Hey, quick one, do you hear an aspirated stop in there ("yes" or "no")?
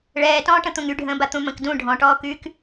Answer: no